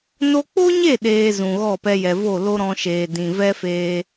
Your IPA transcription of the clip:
no˧k͡po˦ɲe˦˨ ɗeː˧zũ˨ɣɔ˦˨ pɛ˧jɛ˨vo˦˨ lo˧ ɾɔ̃˧ʃeː˨ dĩ˨ vɛ˦feː˧

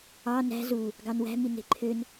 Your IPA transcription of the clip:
ɑ næ̤ zu | ɡɑnwæ̤ mine̤ǃʰøn

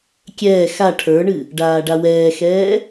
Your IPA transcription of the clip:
kʲɛː xa ʈʰə˞ɳɨ | ɖaːɖawɛːxɛː

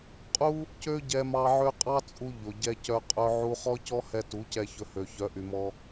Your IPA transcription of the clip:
qʼu˦ | cø˦ɟɛ˧mɑ˧ ʕø˦ qʼɑ˦ t͡sʼu˧ ʎo˨ɟɛ˦cœ˦ qʼœ˧ʕu˧ χɔ˦cɔ˦hɛ˧tu˨˦ cɛ˧ çɵ˧hø˨ çœ˨˦ʔy˨mɔ˧

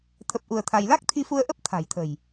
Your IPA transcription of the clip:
t̪ʰə˦˥p̚ʔu˧ə̯t̪ʰa˧j la˦˥k̚t̪ʰi˧fu˧ə̯ ʔə˦˥p̚ t̪ʰa̤˨˩jt̪ʰə̤˨˩j

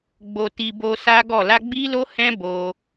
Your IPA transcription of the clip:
ɡ͡bo˨ti˨ bo˧sa˦ɡɔ˦˨ la˧ɡ͡bi˦lo˦hɛ̃˦ bo˧

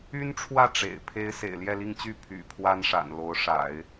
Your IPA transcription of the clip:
y˥nʈ͡ʂʰwä˥˩ ʈ͡ʂḛ˨˩ɪ̯pʰe˥ɪ̯ sḛ˨˩ɪ̯ljɛ˥˧li˥˧ŋt͡ɕy˥˩ pʰy̰˨˩ pʰwa˥nʂa̰˨˩n lo˧˥ʊ̯ʂa̰˨˩˦ɪ̯

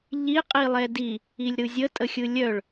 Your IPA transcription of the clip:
ʎi qʼilˠɛdi | ilʲɾɯzʲə tʼəxʲɯlʲœɭ

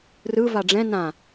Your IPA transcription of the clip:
rɯ vaɖ͡ʐɛ̃ nã

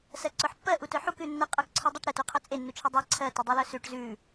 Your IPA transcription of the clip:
sɜǀœħpːɜ ʔutœħuk ʉnːə qʼə˞kǀʰə˞dˤuʈ ɾə tuqʰœt͡sʼe nːut͡ʃʰədˤɜ ǀʰɜ tədˤʉlœsʉʈ zʉ

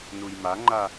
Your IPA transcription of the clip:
nujmaŋ͡ǃa

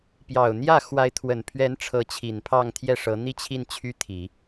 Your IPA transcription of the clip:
pjɑ˨˩ʊ̯n̪jä˥˩ xwa˧˥ɪ̯t̪ʰwə˨˩npʰɥɛ˧˥n ʈ͡ʂʰɤ˧˥t͡ɕʰi˨˩npʰɑ˥˧ŋ t̪ʰjɛ˥˩ʂɤ˧˥ n̪i˥˧t͡ɕʰi˥˩n t͡ɕʰy˥t̪ʰi˨˩˦

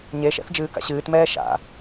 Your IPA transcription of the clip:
ɲeʃɛ̰θ d͡ʒɨːka̰ɕɨːtmɛː ʃa̰

